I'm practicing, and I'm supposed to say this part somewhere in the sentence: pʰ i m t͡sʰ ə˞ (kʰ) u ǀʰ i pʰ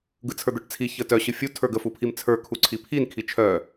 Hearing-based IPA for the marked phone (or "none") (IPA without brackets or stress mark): kʰ